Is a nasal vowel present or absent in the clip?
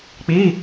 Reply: absent